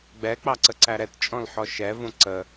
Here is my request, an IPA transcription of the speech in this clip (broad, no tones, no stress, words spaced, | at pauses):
ɡ͡bɛk͡pɑǀəǀæ ɾɛtt͡ʃʼɔ̃lħɔ ʃɛvũ ǀə